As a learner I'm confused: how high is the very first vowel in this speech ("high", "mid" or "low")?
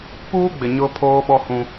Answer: high